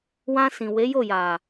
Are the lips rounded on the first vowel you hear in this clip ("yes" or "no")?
no